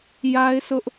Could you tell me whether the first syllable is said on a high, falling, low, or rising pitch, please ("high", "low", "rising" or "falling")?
high